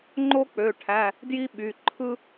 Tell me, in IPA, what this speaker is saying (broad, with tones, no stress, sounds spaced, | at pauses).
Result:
ŋ͡ǃ o˥ k͡p ø˩˧˩ ʈʰ æ˩˧˩ | d j i˥ ɓ y˩˧˩ ǃʰ ɯ˥